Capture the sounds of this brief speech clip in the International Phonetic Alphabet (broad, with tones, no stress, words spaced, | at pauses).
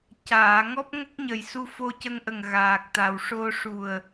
caː˨˩˨ ŋɔ˦˥p̚ŋə˦˥k̚ɲə˨˩j su˧fo˧cə˧ŋʔə˨˩ŋ ɣaː˨˩k̚t̪a˨˩wʂo˧ ʂu˨˩ə̯